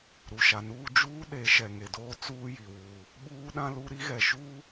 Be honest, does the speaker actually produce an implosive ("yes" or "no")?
yes